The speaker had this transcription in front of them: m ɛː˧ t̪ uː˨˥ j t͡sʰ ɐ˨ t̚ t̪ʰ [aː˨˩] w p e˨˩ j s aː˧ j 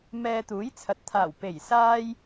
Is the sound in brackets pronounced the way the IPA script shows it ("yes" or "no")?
yes